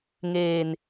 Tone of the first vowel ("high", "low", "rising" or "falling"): low